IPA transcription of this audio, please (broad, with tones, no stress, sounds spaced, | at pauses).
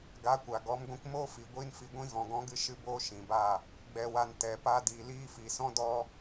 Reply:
ɡ a˨˦ kʷ a˨ ɡ ɔ˨˦ m ɡʷ ĩ˧ k m oː˦ f i˨ ɡʷ iː˦ n f i˧ ɡʷ ĩ˧ ɣ ɔ̃˨ ɡ ɔ̃˨˦ ɡ ɨ˨˦ ʃ ɨ˧ b oː˧ ʃ ĩ˨ b a˦˨ | ɡ͡b ɛ˨ w a˨ n t ɛ˨ p a˧ d iː˨ l iː˧ f i˨ s ɔ̃˦ d ɔ˧